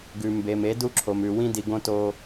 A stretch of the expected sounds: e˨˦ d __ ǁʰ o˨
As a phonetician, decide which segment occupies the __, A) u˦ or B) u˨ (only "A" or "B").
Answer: A